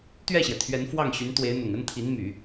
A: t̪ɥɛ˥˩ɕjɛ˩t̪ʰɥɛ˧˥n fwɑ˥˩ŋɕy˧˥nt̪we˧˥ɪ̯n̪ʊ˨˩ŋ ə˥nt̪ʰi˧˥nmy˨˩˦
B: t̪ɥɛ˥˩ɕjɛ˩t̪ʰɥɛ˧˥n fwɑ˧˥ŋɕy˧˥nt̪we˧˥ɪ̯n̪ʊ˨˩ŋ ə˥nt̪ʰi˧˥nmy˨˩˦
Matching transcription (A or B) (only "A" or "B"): A